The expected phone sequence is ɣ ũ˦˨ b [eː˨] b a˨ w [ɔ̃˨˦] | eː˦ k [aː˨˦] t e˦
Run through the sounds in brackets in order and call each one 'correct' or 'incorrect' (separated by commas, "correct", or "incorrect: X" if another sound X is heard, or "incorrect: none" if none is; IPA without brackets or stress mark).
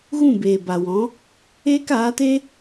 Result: correct, correct, correct